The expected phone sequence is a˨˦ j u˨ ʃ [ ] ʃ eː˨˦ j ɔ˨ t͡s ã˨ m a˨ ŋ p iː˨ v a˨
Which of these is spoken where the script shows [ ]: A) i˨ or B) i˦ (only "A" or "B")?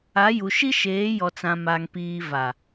B